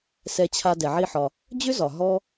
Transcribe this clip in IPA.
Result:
sɛ˧t͡ɕʰa˧ dɛ˩ʕi˧ħɒ˩ | d͡ʑʏ˥zɒ˩ɦɔ˧

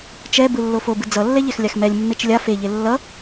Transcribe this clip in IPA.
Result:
t͡ʃɛ bɯlːofobɯ d͡zʌlːɛ ʎɛxlʲaxmɛlʲmːet͡ʃ lʲa feʎe lːʌ

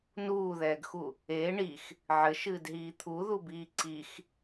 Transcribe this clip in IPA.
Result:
nuːðɛːɡxu | eː ɳix | ʕɘʃɨːdɦiː t̪ʰuðubiː ǀix

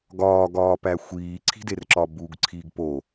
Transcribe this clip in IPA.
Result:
ɡɒːɡɒːpæ xʷiːǀʰi̤derǁɒ buɡǀʰiːɡ po

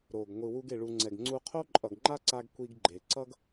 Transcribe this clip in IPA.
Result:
ɾo˩ɡ ŋʷɯ˩wu˧ɡe˩ɭu˩ ŋ͡ǀɛ˩ɡŋ͡ǀu˧qʰo˥ ǃʼʌ˩ɡŋ͡ǃa˥ǀa˧ɡ kʷi˧ɡɡ͡ǃe˩ ǀʌ˥ɡ

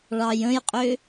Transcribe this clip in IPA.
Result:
ɭɑjə̃jqʼʏ

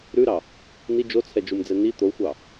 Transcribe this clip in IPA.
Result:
ɾʉɾɑ | ni d͡ʒot͡sʰɛd͡ʒumd͡zɛ ni t̪oxʷɑ

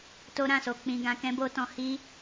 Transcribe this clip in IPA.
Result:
to˦ɾã˦˨so˧ k͡pĩ˧ɡã˧kɛ̃˦bo˦ tɔ̃˧hi˦

